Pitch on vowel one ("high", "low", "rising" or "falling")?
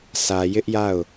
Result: low